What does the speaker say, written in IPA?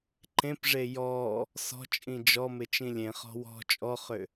ǃ ẽ p ʐ e j ɔ | s ɔ̤ t͡ʃʼ ĩ d͡ʒ ɔ m ɪ t͡ʃ ĩ lʲ ẽ χ ɔ̤ w ɔ̤ t͡ʃʼ ɔ χ ʏ

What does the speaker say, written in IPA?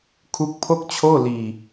kʰ u˦˥ k̚ pʰ o˥˩ k̚ t͡ɕʰ oː˥˩ l iː˧

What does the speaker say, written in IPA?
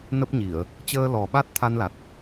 n ə˦˥ p̚ ɲ i˧˩˨ ə̯ | t͡ɕ əː˧ l ɔ˨˩ ɓ a˦˥ t̚ t̪ʰ a˧ n l a˨˩ t̚

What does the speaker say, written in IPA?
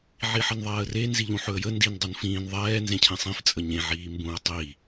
ʕ i ħ ə n ðˤ ɛː ə̯ r e n z i ʎ ũ ħ ɵ ə̯ j ə n d i n dˤ u n f ĩː n ðˤ ɛː n z ẽ cʰ ẽ sˤ ĩ f t͡sʼ ə ɲ ẽ ʕ iː m b ũ ə̯ tˤ i

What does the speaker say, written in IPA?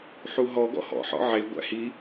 ħ u ɦ ɔ ɡ ɔ̰ h ɔ̰ ħ ɔ̰ ʕ e ɡʷ æ̰ h i

